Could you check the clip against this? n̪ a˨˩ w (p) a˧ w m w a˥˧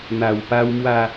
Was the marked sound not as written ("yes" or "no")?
no